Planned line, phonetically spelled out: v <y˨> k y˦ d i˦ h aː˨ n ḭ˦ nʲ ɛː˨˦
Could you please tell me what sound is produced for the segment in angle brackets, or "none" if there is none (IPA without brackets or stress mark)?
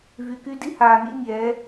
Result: y˨